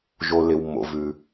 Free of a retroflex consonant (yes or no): yes